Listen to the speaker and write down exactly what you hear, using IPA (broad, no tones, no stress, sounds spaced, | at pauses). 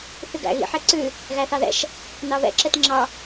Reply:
θ ʉ ɡ æ̰ ɣ ḭ ħ ɛ ǀ ʉ | ɣ æ θ ɑ ð ɛ̰ ʃ | n ɑ β ɛ̰ ǁ ɛ t ŋ͡ǁ ɑ